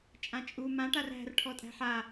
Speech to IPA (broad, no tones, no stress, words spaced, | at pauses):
t͡ʃʼãt͡ʃʼu mã ʈaræ̤r ʈʰɔtʼæ̤ħa